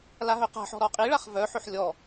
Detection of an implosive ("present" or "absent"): absent